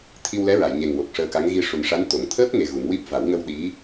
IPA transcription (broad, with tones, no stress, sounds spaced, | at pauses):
t̪ʰ i˧ w l ɛ˧˥ ɹ a˨˩˨ j ɲ e˨˩ ŋ w o˨˩ k̚ ʂ əː˧ k a˧˥ ŋ ɣ i˧ ʂ u˨˩ n ʂ a˧˥ n t̪ o˨˩˦ ŋ t̪ʰ əː˦˥ p̚ ŋ e˧ ɣ u˨˩˦ ŋ w i˦˥ p̚ v a˨˩˦ w ŋ ə˧ w ɗ i˧˥